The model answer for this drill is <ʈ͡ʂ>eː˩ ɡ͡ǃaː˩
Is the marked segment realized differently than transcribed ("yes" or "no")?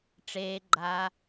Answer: no